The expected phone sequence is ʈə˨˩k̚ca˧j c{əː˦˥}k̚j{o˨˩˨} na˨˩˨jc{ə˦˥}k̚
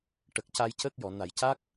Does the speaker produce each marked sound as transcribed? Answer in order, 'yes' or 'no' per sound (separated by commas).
yes, no, no